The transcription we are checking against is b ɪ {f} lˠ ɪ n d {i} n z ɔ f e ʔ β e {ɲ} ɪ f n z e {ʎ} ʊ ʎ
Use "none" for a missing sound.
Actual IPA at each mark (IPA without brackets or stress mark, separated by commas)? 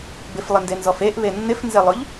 f, e, nː, lˠ